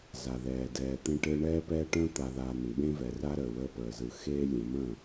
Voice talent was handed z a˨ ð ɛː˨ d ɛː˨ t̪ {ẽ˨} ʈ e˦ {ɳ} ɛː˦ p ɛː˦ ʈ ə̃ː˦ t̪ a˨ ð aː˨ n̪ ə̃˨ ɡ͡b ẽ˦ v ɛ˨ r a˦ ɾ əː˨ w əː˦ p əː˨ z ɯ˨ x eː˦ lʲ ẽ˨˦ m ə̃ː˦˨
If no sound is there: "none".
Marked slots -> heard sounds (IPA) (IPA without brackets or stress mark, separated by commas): ẽ˦, ɳ